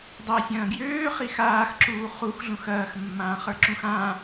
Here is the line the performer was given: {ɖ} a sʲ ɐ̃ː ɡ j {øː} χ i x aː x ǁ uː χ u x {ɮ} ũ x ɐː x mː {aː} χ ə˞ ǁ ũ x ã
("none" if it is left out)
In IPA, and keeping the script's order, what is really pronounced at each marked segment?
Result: dˤ, øː, ɮ, ãː

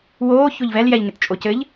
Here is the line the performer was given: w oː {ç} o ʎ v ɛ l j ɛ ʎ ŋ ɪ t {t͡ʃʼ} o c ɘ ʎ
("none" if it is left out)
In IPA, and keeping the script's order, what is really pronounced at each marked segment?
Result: ç, t͡ʃʼ

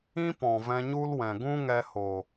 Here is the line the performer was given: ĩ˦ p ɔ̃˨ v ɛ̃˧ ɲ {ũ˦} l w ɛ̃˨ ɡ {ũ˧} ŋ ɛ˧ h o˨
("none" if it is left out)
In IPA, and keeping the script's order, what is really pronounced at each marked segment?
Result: u˦, ũ˦

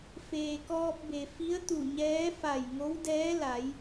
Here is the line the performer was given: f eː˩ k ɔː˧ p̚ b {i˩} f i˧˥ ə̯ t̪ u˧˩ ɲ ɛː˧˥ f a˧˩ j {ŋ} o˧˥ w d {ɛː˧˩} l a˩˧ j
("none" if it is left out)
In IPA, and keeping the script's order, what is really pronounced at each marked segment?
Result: e˩, ŋ, ɛː˧˥

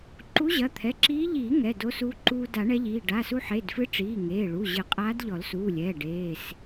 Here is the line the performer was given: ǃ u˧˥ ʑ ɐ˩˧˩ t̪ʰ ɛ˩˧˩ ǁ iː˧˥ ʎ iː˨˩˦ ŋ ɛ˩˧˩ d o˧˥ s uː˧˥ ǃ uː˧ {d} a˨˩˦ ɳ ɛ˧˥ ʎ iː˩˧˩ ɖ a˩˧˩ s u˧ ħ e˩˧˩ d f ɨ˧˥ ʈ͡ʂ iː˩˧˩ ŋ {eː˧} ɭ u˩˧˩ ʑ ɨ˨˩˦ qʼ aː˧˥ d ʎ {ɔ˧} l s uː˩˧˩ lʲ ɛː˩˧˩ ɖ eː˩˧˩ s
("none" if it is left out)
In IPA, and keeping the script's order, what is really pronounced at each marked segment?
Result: d, eː˩˧˩, ɔ˨˩˦

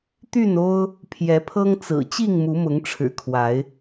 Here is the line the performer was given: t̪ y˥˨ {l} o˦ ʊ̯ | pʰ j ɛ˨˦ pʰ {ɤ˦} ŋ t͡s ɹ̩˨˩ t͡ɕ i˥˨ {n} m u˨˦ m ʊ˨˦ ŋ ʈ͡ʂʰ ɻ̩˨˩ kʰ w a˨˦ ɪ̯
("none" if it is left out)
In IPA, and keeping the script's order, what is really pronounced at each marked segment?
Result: n, ɤ˦, ŋ

